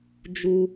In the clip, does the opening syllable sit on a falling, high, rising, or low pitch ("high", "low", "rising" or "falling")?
low